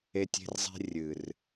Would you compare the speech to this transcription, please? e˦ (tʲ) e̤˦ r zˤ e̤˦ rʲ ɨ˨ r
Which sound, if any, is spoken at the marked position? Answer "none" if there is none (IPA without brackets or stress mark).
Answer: tʲ